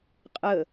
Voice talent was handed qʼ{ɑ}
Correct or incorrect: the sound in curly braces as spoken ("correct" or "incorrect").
incorrect